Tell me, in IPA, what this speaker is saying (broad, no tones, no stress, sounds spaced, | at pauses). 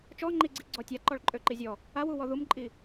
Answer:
t͡ʃ ɔ ŋ͡ǃ i ɡ͡ǀ i ɡ͡ǀ ɔ tʲ a ǃ ɔ ɭ ǃʼ ø ǃ i zʲ ɔ | a w u w ɔ ð u m ǃʼ i